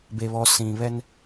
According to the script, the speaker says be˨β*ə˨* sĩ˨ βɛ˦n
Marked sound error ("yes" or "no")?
yes